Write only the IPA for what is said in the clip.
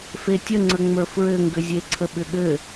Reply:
f e tʲ ə ŋ͡ǀ ə ŋ͡m ə˞ f ɹ ɘ ŋ ɡ ʏ zʲ e ǀʰ ə ɓ ʏ ɠ ɘ

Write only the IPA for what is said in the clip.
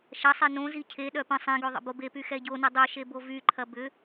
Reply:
ʃ ɐ sˤ e n õ z i cʰ e ɗ œ p ə̃ sˤ ɛ̃ ɡ ø ðˤ ə̰ b o b e p y x ɛ ɟ o n ɐ dˤ œ ʃ e b o v y ǃʰ ɐ b ʏ

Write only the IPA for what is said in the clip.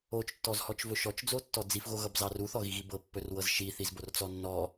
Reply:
o t͡ʃ tː ɔ z h ɔ t͡ʃ v ɵ ʃ ɔ t͡ʃ d͡z o tː ɔ d͡z i f ɣ o ɣ ʌ b z ɑ r u θ ɔ ɣ i ɣ i b ɤ pː ɵ r w ɤ z ʃ i θ i z b o r t͡s ɔ nː ɔ

